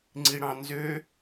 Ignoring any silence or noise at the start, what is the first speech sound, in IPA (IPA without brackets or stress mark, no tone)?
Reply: ŋ͡ǀ